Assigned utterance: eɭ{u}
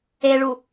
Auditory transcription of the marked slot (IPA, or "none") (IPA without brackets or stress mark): u